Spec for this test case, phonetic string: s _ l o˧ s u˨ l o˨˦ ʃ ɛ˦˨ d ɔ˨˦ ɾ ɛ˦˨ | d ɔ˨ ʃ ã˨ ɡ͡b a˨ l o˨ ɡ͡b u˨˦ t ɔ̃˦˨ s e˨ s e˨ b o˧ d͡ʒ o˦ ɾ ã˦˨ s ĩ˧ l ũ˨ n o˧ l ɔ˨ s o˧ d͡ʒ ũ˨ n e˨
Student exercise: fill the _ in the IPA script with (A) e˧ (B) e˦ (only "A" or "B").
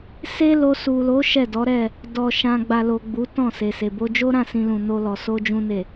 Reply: B